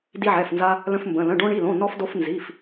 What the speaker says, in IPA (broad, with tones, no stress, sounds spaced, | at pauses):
d i˧ ʕ ɛ˩˧˩ f n z a˧ | l ə̃˧ f m b ə̃˩˧˩ l ə̃˩˧˩ ɖ õ˧ ɳ i˩˧˩ l õ˩˧˩ n ɔ˧ f d o˧ f n z i˩˧˩ f